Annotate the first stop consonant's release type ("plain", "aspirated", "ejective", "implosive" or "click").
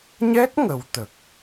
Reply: plain